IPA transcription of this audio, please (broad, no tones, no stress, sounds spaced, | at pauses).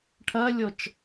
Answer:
ʈʰ ɐ lʲ ɔ t͡ʃ